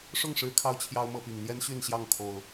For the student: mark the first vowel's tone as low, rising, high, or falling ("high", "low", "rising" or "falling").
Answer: falling